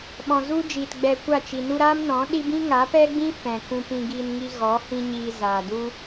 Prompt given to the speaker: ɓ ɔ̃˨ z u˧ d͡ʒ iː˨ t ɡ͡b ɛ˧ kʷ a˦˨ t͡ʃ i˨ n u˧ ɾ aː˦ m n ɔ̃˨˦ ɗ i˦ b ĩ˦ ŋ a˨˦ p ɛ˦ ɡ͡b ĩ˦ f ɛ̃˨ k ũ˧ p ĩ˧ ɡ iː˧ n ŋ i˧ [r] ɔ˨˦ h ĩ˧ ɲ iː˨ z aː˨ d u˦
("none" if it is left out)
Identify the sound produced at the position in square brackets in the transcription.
ɣ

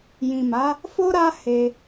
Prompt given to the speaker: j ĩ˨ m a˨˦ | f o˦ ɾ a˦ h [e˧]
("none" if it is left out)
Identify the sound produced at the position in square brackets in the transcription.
e˧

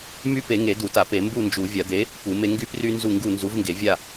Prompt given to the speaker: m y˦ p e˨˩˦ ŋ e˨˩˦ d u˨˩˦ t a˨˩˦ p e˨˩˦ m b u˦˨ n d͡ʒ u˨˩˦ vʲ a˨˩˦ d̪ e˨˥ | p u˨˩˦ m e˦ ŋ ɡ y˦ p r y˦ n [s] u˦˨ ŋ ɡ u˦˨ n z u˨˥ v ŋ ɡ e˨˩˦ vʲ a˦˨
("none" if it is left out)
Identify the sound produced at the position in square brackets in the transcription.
z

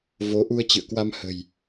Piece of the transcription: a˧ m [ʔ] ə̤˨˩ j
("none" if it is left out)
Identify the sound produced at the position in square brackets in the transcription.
h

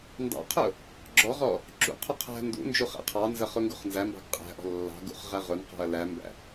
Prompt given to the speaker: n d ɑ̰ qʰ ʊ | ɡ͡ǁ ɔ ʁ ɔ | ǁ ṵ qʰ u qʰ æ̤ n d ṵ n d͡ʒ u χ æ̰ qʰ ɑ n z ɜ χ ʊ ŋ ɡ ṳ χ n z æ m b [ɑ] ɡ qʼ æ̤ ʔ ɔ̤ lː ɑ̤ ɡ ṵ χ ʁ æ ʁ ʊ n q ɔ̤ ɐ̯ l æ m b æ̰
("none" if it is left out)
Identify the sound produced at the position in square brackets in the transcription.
ɑ̤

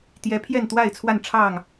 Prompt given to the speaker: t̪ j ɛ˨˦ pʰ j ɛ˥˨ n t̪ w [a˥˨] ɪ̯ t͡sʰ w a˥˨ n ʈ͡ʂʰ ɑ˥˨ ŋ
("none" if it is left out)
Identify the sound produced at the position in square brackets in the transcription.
a˥˨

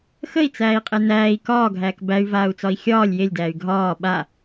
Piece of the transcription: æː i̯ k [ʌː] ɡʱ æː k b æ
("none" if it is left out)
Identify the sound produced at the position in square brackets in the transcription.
ɒː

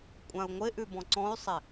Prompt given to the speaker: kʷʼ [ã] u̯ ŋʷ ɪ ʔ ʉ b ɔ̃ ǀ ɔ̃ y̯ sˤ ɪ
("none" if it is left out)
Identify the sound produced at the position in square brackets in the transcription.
ã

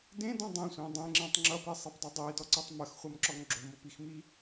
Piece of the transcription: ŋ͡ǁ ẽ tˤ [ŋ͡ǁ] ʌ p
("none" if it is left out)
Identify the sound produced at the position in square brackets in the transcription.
ŋ͡ǁ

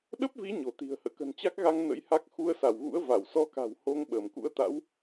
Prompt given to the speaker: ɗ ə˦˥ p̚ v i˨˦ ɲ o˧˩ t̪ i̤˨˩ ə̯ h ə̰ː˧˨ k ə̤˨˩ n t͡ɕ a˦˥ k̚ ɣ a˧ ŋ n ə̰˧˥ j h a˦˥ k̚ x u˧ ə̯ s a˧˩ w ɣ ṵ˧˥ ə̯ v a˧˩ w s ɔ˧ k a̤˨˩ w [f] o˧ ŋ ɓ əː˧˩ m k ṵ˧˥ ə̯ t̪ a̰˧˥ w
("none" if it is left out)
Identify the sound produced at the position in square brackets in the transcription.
h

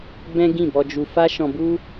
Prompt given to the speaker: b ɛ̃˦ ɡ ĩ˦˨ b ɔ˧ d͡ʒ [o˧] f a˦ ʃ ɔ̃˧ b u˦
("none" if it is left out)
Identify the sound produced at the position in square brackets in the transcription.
u˧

